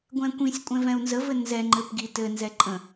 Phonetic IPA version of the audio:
ɡʷ ɛ̃ kʷ ĩ sʲ kʷʼ ɛ̃ v ɛ̃ u̯ n z ə v ɘ n z ɛ ŋ͡ǃ ɘ p ɡ i t ɘ n z ɛ ǃʼ ə̃

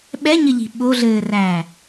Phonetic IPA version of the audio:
ɓ ɛ ɲ ɘ ʎ i̤ ɓ o ɮ ɘː r æː

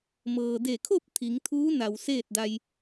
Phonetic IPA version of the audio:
m ɤː˩ d e˧˩ kʰ o˥˨ p̚ t̪ʰ i˩˧ ŋ t̪ʰ uː˧˥ n a˩ w s eː˥˨ t̚ d a˧ j

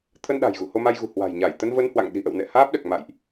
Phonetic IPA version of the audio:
t̪ʰ ə˧ n ɗ a̤˨˩ j ɣ ṵ˧˨ h o˧ m a˧ j ɣ ṳ˨˩ h w a̤˨˩ j ɲ a˧˩ j t̪ ə˧ n v ə˧ n h w a̰˧˨ ŋ ɗ i̤˨˩ ʔ ə̰˧˨ w n ɛ̰˧˨ h aː˦˥ p̚ ɗ ɛ˨˩ k̚ m a̰˧˨ j ʔ

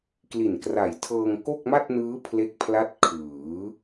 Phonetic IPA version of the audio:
k l i˨˩ n k r a˨˩ j tʰ ɤː˧ ŋ k o˥˩ k̚ m a˥˩ t̚ n ɯː˦˥ pʰ l e˦˥ k̚ pʰ l a˦˥ t̚ kʰ ɯː˩˦

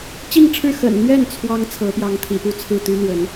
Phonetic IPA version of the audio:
t͡ɕ i˥˧ ŋ ʈ͡ʂʰ ɻ̩˥˩ x ə̰˨˩ n n̪ ɥ ɛ˥˩ n t͡sʰ w ɑ˥ ŋ t͡sʰ ɤ˧˥ p j ɑ˧˥ ŋ t̪ʰ ḭ˨˩ p u˥ t͡sʰ ɹ̩˥˩ t̪ y˥ n̪ w ə˧˥ n

